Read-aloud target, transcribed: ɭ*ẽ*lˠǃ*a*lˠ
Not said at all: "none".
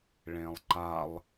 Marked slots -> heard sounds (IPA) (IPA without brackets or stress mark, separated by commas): ẽ, a